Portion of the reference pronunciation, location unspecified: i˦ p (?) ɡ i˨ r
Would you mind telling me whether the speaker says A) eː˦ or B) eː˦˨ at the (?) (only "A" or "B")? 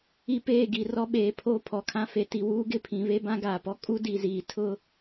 B